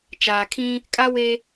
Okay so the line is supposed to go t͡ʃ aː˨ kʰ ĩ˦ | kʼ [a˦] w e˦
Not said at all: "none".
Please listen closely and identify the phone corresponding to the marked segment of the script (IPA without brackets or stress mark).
a˦